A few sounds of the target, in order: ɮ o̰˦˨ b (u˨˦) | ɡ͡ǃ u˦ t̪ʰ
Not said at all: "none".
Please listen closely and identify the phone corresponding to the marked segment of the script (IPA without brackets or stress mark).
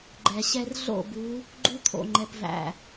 u˨˦